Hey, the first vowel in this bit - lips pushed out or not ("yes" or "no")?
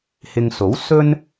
no